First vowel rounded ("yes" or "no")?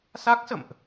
no